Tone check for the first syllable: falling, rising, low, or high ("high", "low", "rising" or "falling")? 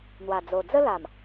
low